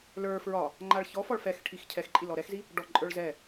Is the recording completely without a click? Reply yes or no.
no